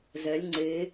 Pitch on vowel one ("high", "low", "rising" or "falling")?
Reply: rising